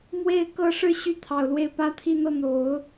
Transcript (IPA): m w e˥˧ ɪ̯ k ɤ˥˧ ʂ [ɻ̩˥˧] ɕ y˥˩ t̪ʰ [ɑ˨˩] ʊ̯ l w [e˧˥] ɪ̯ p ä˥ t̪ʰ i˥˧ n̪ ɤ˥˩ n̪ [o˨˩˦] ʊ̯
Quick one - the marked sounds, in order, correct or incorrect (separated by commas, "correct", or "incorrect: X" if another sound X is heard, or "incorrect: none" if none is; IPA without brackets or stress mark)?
correct, correct, incorrect: e˥˩, correct